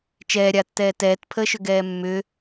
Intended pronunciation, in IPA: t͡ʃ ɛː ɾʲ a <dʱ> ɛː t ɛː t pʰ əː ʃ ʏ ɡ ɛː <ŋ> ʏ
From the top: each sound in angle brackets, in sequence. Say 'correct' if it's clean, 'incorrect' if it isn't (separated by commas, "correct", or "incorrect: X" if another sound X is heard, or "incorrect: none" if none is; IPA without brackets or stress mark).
incorrect: tː, incorrect: mː